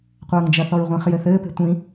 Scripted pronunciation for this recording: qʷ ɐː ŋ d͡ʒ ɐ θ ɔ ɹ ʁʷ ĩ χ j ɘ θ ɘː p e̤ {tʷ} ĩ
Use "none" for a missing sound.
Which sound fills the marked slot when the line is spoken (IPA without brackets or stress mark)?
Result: tʷ